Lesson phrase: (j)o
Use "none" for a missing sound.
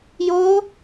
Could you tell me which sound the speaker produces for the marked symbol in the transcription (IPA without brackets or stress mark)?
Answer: j